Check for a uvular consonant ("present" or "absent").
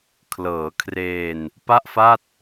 absent